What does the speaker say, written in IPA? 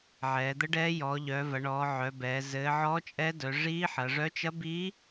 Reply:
ʕ ɛː˩˧ d̪ ə˧˥ ɖ ɛ˧˥ j ɔː˩˧ ʎ œ˩˧ v ɐ˩˧ ɳ ɔː˩˧ ʕ œ˩˧ b ɛː˩˧ z ɘː˩˧ ʕ ɔː˧˥ t͡ʃʼ ɛ˧˥ d œ˩˧ ʐ iː˧˥ ħ ɐ˩˧ ʐ œ˧˥ t͡ʃ ɐ˧˥ b iː˧˥

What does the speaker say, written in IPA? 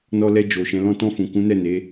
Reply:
n ɔ˧ l ɛ˧ d͡ʒ o˨ ʃ ɛ̃˨˦ l ɔ̃˦ t ɔ̃˧ f ũ˨ k ũ˨˦ n ɛ˦˨ n e˨˦

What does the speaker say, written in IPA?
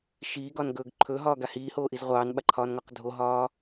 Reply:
ʃ iː ɡ ɒ n ɡ ɵː ɡ ǃʰ ɵ ɦ ɒː ɡ a h iː h oː ʔ i z ʁʷ ɑː n ɓ a ǃʰ ɒː n ŋ ɒ q dʱ o ɦ ɒː

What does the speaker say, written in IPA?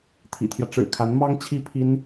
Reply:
t̪ʰ ḭ˨˩ t̪ʰ j ä˦ ʈ͡ʂ ɻ̩˨˩ kʰ a˧˥ n m ɑ˥ ŋ t͡ɕʰ i˥ pʰ i˥ n

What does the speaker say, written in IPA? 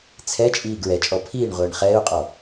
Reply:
t͡sʰ ɛ t͡ʃʼ iː ɡ ɹ ɛ t͡ʃʼ ɔ pʰ iː ɳ ʁʷ ɛː ɳ χ ɛː u̯ qʼ ɔ

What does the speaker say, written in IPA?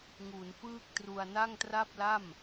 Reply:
ŋ u˩˦ n f ɯː˥˩ k̚ t r u˧ a̯ n a˥˩ ŋ t r a˥˩ p̚ l a˥˩ m

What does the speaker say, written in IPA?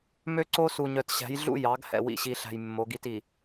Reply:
m ø˦ ǀ o˦ s u˨ ɲ œ˨ t ɕ æ̤˨˦ j ɮ ṵ˦ j ɑ˨˦ ɡ h ɛ̰˨ w ḭ˨ ɕ i˨ ɬ æ̤˨ j mː o˨˦ ɡ i˦ t i˨

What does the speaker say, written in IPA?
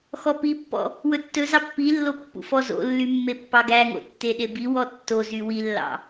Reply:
x ɔ p i pː ɔ̰ | w ɵ tː ɵ z ɑ pː i lː o pː ṵ f ɔ z o̰ lː y mː e pː ɑ ɡ æ ŋ o̰ tː e ɗ e b i w ɔ tː o z y w i lː ɑ̰

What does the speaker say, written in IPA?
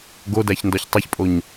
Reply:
ɡ o d æ ç n d ɒ ç tˤ i ç pʼ o ɲ

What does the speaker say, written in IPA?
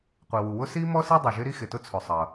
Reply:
qʷ i˩ w u˩ w ʊ˥ s i˥ m ɔ˥ s i˥ dˤ ʊ˩ ʒ ɪ˥ ɾ i˥ x ɪ˩ t ʊ˥ t͡sʰ ʊ˩ sˤ ʌ˩

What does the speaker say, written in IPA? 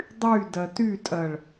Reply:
dˤ y d ɜ t y tʼ ɜ ɭ

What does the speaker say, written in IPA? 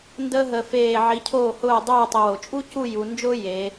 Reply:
n d əː˥ ɦ ə˧ f eː˧˩ ʕ i˩˧ cʰ oː˧˩ h ʊː˧˩ dˤ uː˧˩ tˤ ə˧ w o˩˧ t͡ʃʼ u˥ c u˥˧ j u˩˧ n d͡ʒ ʊː˥ j eː˩˧

